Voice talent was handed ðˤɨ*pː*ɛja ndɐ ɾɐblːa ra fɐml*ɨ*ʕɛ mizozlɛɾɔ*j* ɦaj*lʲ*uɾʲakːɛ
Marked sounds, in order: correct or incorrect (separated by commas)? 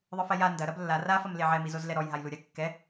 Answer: incorrect, incorrect, correct, incorrect